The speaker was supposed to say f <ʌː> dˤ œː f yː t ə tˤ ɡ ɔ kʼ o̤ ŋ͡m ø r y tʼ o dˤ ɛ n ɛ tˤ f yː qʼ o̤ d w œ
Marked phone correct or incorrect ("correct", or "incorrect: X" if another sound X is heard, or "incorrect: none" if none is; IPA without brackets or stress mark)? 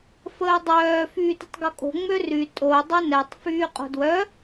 incorrect: əː